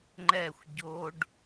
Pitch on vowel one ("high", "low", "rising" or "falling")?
falling